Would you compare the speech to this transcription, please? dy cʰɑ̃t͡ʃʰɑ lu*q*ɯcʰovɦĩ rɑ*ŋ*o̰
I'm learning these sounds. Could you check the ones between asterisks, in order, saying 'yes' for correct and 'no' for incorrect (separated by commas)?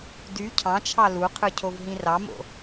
no, no